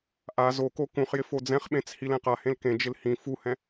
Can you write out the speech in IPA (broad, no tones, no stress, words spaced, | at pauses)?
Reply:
ʔa zoko kũχjɪ fod͡zɛ̃χɓẽt͡s hilɛ̃qahẽl kẽd͡ʒɪl hĩ fuhɛ̃